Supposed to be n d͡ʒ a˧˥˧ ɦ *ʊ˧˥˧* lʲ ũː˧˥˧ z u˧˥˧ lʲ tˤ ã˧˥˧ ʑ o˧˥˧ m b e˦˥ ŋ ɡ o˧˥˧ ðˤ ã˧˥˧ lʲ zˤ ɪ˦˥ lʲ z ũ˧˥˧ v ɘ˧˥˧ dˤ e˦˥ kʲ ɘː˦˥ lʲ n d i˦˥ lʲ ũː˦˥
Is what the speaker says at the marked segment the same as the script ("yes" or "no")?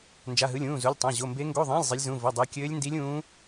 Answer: no